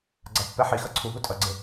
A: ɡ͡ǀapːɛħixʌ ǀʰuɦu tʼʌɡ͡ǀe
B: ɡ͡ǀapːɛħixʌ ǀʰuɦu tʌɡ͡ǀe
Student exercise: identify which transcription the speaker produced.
A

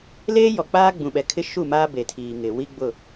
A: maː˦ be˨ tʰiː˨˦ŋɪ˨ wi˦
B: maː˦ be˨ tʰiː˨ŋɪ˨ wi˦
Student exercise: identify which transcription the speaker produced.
B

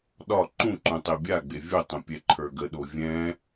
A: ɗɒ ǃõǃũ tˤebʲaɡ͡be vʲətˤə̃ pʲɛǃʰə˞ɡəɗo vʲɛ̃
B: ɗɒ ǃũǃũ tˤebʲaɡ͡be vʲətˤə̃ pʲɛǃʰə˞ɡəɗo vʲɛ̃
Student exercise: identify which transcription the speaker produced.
B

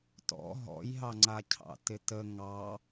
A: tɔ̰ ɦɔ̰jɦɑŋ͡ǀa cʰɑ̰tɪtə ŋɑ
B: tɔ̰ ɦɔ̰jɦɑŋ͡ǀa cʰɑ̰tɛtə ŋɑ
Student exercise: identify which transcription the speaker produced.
A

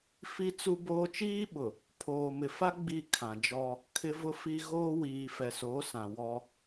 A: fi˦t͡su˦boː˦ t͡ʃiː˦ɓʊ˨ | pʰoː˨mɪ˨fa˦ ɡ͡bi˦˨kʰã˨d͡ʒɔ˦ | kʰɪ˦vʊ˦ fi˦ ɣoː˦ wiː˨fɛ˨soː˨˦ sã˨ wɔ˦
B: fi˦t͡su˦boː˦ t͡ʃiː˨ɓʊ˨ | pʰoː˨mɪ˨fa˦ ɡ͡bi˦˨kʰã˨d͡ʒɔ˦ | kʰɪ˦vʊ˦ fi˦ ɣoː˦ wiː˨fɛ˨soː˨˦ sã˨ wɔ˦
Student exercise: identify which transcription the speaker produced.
A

